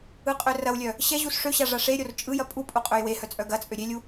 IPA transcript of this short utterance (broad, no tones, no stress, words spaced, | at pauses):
ɯqʼørɐwlʲœ | ɕɛ ʑusʂøɕa ʐaʂeɾʲor t͡ʃʼɯjɐ pʼupʼu qʼøjwehœ t͡sʼœɡɐt͡sʼø ɾʲelʲu